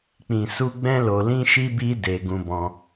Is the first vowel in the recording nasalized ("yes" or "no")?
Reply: yes